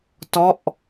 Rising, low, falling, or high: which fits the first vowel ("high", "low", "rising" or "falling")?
falling